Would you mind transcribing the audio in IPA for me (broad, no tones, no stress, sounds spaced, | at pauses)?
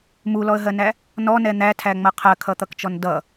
m u l ɔ ə̯ ɦ ɜ n æ | n ɔ n ɛ n̪ æ tʰ æ ŋ͡m ʌ qʰ ɜ kʰ ʌ t̪ ʌ k t͡ʃ ɔ n d ʌ